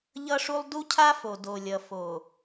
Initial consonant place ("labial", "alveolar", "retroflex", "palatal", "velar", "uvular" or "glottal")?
palatal